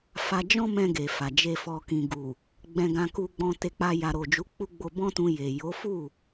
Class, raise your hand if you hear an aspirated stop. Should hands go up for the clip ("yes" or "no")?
no